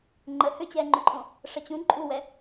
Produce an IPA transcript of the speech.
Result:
ŋ͡ǃ ə h ʏ t͡ɕ ɛː ŋ͡ǃ ʏ ǃʼ õ | ʂ ə t͡ɕ ũ ǃʼ u w ɛ

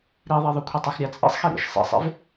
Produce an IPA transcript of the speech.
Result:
ɾ i ðˤ e ðˤ ʊ kʷʰ i tˤ ə˞ x ɾʲ a t͡sʼ ḭ sˤ x e ɾ ḭ ʃ sˤ ḛ sˤ ḛ v

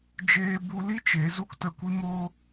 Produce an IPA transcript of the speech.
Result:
d͡ʒ eː˧ b u˧ l i˦ t͡ʃ e˨˦ z u˦ k t ə˧ kʷ i˦ m o˦

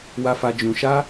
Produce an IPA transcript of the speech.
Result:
w a˧ f a˧ d͡ʒ ũ˧ ʃ a˦

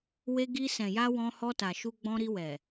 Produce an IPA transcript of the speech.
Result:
w e˧ ɡ i˧ s ɛ̃˨ j a˧ w ɔ̃˧ h ɔ˧ t a˨ ʃ u˧ ɡ͡b ɔ̃˧ ɾ i˧ w ɛ˨

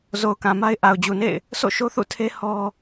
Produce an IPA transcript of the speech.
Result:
z o˨ ʊ̯ k ã˨ m a˦ ɪ̯ ʔ a˨ ʊ̯ d͡ʑ u˨ n ḛ˦˨ ɪ̯ | s o̰˦˨ ʃ o˦ θ ṵ˦˨ tʰ e˦ h ɔ˦

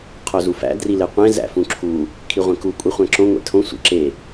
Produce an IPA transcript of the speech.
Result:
qʰ o z u f æ̰ d r i l e qʷ ẽ z æ̰ f ũ ǁʰ u | kʰ i ʁʷ ẽ k u kʷʼ i χʷ æ̃ ǁ õ ŋʷ ḛ tʰ õ sʷ ḛ ǁ e

